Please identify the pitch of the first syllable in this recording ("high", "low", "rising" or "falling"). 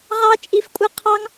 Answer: high